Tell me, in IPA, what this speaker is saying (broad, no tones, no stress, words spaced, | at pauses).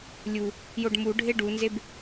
lʲu | joɖmu ɖʱeɖunzeb